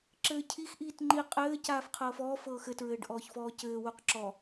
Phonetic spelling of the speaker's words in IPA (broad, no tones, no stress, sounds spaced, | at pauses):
ǁ ɘː cʰ i x ʔ iː t ŋ͡ǃ i qʼ ɘː c aː f qʰ ɤː f ɔː f ɤː x ɘ t ɹ ɘː ɖ ʔ ɔː ç f ɔː c ɘː w u q ǁ ɔ